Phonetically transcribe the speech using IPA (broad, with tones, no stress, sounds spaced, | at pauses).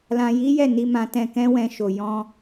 l ã˧ j i˦ j ɛ˦˨ n i˧ m ã˧ t ɛ̃˧ k ɛ̃˦ w ɛ̃˧ ʃ o˨ j ɔ̃˧